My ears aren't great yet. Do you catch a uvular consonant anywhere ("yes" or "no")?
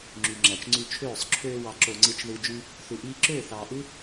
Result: no